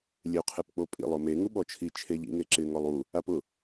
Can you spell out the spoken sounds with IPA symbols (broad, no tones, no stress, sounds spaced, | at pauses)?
lʲ e u̯ qʰ e p k͡p o pʼ ḭ lˠ ʊ m e ŋ u ɓ ɔ t͡ʃʰ i t͡ʃʰ e ʎ ḭ ŋ e ǁ ɪ ŋ ɔ lˠ u | a p ʊ